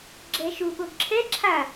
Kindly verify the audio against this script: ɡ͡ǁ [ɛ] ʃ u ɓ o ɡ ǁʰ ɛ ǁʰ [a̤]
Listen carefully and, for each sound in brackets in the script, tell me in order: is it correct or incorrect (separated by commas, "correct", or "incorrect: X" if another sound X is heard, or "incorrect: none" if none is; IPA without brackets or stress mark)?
correct, incorrect: a